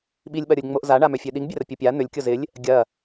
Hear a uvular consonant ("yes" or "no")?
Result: no